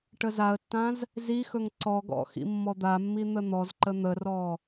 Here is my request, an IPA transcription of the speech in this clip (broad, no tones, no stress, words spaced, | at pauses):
ʈəzaə̯tːãz | zixɵŋ ǀɔɡɔ̰ xḭmːɔd̪amːi n̪ən̪ɔzǃə n̪ərɔ